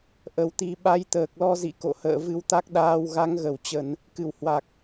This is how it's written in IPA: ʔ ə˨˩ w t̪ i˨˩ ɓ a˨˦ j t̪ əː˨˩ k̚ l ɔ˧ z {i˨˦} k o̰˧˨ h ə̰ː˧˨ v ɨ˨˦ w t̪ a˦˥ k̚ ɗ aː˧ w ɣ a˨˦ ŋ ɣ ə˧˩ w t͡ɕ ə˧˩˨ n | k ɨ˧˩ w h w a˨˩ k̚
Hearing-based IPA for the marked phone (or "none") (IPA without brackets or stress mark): ḭ˧˨